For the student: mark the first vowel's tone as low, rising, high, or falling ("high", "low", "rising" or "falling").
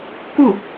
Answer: falling